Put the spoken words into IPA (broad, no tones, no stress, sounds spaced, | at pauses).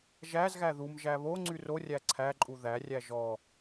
ʒ æ z ɣ æ ð u m ʒ æ β o ŋ͡ǀ y r o rʲ æ ǀʰ æ ǃʼ u ð æ rʲ æ ʒ ɔ